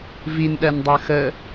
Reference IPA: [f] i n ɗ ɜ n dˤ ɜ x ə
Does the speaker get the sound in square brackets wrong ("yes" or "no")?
yes